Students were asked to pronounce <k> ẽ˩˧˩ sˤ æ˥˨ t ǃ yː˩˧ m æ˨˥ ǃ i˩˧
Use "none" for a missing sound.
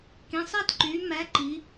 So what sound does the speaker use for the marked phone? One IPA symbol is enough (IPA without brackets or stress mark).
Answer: k